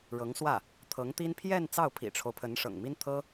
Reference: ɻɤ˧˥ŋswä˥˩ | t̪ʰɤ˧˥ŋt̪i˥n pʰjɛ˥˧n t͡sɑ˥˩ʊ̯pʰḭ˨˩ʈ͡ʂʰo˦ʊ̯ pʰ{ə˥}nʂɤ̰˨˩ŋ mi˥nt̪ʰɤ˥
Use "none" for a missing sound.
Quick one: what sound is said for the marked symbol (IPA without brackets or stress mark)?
ə˧˥